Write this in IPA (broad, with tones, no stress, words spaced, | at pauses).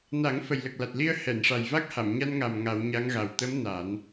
na˨˩˦ŋ fə˨˩jlə˨˩k̚la˨˩t̚li˧ə̯ hɛ˨˩˨nʂa˨˩jva˦˥k̚ha˨˩˨m ɲa˧nŋa˨˩m ŋa˨˩˦wɲa˧˥ŋɣa˨˩w t̪ə˧˥m na˨˩˦n